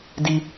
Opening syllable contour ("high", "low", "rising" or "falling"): high